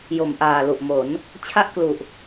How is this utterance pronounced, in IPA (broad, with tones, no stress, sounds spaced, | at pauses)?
j o˨˩ m ʔ aː˨˩ l u˨˩ ʔ m o˩˦ n | t͡ɕʰ a˥˩ ʔ k l u˨˩ ʔ